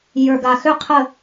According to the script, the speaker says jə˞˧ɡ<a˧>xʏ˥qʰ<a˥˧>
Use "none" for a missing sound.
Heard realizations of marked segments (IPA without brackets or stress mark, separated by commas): a˧, ə˥˧